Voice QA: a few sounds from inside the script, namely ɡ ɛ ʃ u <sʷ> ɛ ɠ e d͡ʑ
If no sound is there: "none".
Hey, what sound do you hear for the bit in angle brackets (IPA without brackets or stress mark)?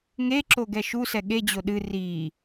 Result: s